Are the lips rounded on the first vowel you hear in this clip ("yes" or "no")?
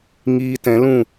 no